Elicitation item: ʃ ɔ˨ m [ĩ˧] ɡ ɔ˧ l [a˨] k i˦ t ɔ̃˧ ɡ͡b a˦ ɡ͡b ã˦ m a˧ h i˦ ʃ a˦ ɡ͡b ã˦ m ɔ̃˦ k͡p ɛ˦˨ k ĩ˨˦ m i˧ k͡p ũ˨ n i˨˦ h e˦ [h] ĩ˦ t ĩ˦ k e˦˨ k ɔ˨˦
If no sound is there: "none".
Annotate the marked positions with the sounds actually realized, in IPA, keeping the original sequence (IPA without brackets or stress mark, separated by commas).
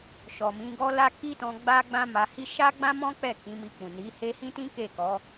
ĩ˨˦, a˧, h